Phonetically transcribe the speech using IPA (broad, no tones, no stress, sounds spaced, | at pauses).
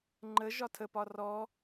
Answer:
ŋ͡ǃ ə ʒ ɒ tʰ ə p ɒ r ɔ